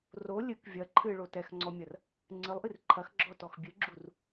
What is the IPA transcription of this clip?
r o lʲ ɨ k vʲ ɐ ǃʰ ɨ ɭ o t ɛ x ŋ͡ǀ ɔ mʲ ɐ r | ŋ͡ǀ ɨ lˠ ʔ ɨ r ǃʰ ɐ x ɡ͡ǁ ɔ t ɔ x bʲ ɨ ɡ͡ǁ u r

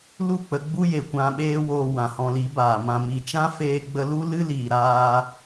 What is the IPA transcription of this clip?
l u˦˨ k͡p ə˧ ɡ͡b u˦ j e˨ kʷ ã˧ ɓ eː˦ w oː˧ w ã˨ h ɔ̃˧ l i˨˦ b aː˨ m ã˨ m i˨ t͡ʃ ã˦ f eː˦ ɡ͡b ə˦ l u˦ l ɨ˦ l iː˨ ɾ aː˧

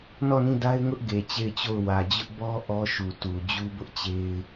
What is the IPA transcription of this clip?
n ɔ˦˨ n ĩ˦˨ d a˦ ɪ̯ ŋ ʊ˦ ʔ ɡ e˨ t͡ɕ e˦˨ ɪ̯ t͡ɕ o˦˨ ʊ̯ w ä˨ d͡ʑ ʊ˦ ʔ b ɔ˦ ʔ ɔ˦ ʃ u˨ t u˨ d͡ʑ u˦ b ʊ˦ ʔ t͡ɕ e˦ ɪ̯

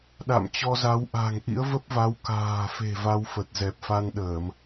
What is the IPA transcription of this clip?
ɗ a̰˧˨ m t͡ɕ ɔ˧ z a˨˦ w ʔ a̤˨˩ ŋ ʔ ḭ˧˥ ə̯ v ə˦˥ p̚ v a˨˦ w k a̤ː˨˩ f e̤˨˩ v a˧ w f ə˨˩ t̚ z ɛ˨˩ p̚ f a˧ n ɗ əː˧˩˨ m

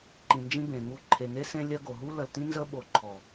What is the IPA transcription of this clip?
ǃ ĩ˨ n d͡ʒ ĩ˦ b ẽ˨ ŋ u˨ ǃʰ e˨ ŋ e˦ s ẽ˦ lʲ ɜ˦ ɡ o˨ ɦ u˦ l ə˨ l t ĩ˦ n z ə˦ ɓ o˨ ǃʰ ɔ˨

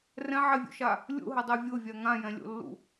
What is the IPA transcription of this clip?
r ɛ̃ ʕ ɛ vʲ ṵ ʃ a | lʲ ṵ ɦ ɘ dˤ e vʲ o vʲ a ŋ ã j ɛ̃ lʲ o̰ lː ṵ

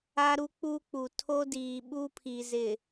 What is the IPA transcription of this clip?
a˦ ɾ u˦ k͡p u˦ k͡p u˨ tʰ o˦ d iː˨ ɓ u˦ pʰ i˨ z ɪ˨

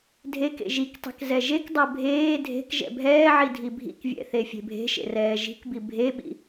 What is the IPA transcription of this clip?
dʱ e k ḛ ʒ i k tˤ e̤ k z ɛ ʒ e k dˤ ɜ bʱ eː dʱ e̤ k ʒ ɛ̰ bʱ ɛː ʕ i dʱ i bʱ ḭ k vʲ ɛ̰ θ e fʲ e̤ bʱ e̤ ʃ ḛ r ɛː ʒ i̤ k b i bʱ e ɓ ḭ

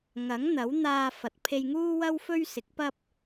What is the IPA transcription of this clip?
ŋ ɐ˨˥ ŋ n̪ ɐ˨˥ w n̪ aː˧ f ɐ˨ t̚ pʰ e˧ j ŋ uː˥ w ɐ˥ w f ɵ˥ ɥ s ɪ˨˥ k̚ p ɐ˥ p̚

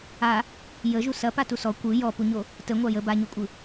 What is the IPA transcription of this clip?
a | j ə ʒ u s ɐ p a t u s ɔ kʷ ɯ j ɔ p u ɲ o | t ə ŋʷ a j ə b a ɲ o kʷʼ ɯ

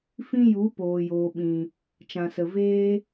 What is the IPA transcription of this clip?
f ĩ˦ j u˨˦ p oː˨ j oː˨ ɓ ĩ˨ | t͡ʃ ã˨ s ə˨ v eː˦

